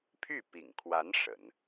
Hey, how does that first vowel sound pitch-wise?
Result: falling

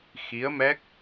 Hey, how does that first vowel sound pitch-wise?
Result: rising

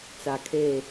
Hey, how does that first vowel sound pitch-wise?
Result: low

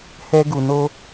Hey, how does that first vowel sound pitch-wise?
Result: high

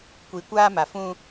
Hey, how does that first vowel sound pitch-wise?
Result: low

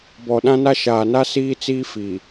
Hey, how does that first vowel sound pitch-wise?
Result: low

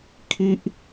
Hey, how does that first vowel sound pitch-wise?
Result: high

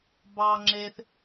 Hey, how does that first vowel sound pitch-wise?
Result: low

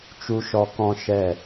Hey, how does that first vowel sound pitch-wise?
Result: low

